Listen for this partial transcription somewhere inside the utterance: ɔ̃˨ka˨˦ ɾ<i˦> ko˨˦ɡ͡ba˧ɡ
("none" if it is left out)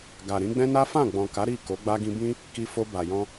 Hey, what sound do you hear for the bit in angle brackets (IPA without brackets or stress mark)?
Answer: i˦˨